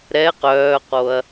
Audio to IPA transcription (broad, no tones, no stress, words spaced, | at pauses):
ɾɛ qœːqoɐ̯